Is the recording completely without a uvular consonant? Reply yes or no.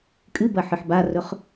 no